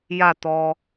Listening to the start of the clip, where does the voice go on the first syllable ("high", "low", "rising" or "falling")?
falling